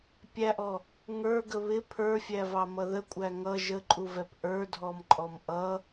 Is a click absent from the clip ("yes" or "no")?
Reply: no